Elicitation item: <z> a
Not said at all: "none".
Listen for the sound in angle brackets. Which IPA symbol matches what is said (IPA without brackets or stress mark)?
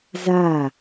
z